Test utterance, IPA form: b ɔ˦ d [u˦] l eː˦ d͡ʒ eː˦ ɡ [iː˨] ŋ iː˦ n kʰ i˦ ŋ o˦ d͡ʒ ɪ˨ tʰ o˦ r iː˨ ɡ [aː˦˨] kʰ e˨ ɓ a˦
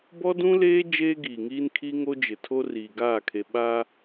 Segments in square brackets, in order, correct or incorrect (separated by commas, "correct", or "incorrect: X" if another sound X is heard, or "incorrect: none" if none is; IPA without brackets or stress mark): incorrect: ũ˦, correct, correct